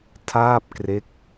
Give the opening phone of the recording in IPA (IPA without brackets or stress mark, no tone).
tʰ